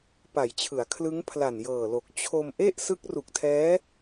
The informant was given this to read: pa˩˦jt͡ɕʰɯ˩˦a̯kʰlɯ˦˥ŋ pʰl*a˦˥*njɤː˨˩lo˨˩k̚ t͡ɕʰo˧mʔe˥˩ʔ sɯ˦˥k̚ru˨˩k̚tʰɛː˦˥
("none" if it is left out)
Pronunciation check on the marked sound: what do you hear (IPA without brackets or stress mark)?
a˨˩